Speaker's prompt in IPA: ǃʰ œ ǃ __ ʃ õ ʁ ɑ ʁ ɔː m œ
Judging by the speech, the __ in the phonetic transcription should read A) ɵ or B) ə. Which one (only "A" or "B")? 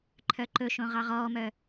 A